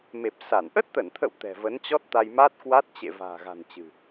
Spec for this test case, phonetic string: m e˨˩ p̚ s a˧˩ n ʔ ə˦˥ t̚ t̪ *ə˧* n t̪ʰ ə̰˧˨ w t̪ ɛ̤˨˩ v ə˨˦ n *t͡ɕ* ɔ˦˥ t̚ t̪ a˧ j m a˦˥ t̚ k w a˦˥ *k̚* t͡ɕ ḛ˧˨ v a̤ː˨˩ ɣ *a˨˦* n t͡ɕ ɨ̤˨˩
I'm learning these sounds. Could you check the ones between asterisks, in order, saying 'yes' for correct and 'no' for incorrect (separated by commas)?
no, yes, no, no